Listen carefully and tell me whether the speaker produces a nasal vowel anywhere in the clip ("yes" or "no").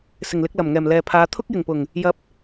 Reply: no